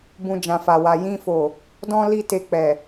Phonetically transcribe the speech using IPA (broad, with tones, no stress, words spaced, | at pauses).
bũ˧d͡ʒã˨fa˨wa˨ jĩ˧fo˨ | dɔ̃˦ li˦ te˧k͡pɛ˨